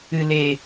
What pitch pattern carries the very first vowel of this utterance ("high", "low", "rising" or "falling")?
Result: low